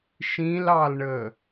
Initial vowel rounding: unrounded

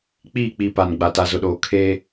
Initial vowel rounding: unrounded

